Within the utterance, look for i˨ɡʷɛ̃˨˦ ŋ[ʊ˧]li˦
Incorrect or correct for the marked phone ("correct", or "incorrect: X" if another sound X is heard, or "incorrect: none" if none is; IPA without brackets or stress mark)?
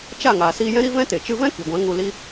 incorrect: u˧